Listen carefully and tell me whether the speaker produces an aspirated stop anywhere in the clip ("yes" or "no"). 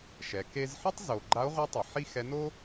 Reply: no